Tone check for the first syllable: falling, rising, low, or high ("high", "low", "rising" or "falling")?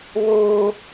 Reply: high